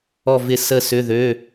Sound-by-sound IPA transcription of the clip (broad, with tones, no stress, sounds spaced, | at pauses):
ɔ˥˨ v ɪ˥˨ s ə˥˨ s ʏ˧˥˧ ð ø˧˥˧